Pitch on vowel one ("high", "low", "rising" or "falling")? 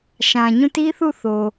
low